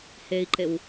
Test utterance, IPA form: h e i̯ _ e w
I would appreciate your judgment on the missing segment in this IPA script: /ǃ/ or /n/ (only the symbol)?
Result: ǃ